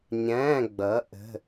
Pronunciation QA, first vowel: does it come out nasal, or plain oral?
nasal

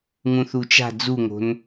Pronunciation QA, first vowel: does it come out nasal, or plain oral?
nasal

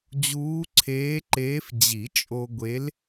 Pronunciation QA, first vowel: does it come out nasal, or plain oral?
oral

